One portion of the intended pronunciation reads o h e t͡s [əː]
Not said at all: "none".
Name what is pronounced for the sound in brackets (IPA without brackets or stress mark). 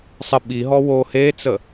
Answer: ə